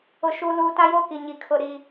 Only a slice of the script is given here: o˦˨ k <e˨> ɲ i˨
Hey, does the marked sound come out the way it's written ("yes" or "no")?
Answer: no